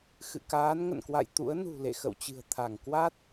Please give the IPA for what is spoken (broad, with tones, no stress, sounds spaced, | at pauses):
x ɨ̰˧˨ k aː˨˦ n ŋ ə̰˧˨ n k w a̰˧˨ j t̪ ṵ˧˥ ə̯ n ṳ˨˩ l ḛ˧˨ x ə̰˧˨ w t͡ɕ ɨ̤˨˩ ə̯ t̪ʰ a˧˩ ŋ k w a˦˥ t̚